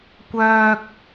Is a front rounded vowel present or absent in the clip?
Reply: present